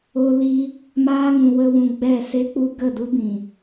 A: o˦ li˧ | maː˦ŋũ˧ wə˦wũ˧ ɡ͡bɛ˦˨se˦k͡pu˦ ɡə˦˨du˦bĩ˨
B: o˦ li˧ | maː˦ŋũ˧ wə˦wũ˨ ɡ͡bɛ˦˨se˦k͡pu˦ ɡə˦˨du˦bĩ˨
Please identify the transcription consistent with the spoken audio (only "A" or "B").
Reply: A